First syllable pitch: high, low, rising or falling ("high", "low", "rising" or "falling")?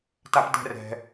high